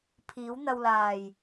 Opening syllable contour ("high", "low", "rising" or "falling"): rising